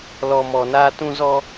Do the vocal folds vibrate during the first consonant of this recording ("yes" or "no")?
yes